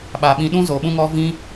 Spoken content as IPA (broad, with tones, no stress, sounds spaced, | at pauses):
ɓ a˨ ɓ ĩ˧ ɗ ũ˦ z o˨ ɓ ũ˦ ŋ ɔ˦ v ĩ˦